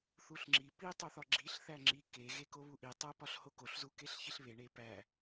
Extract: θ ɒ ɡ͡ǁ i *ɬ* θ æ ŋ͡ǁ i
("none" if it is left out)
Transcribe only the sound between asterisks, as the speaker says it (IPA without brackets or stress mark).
ɬ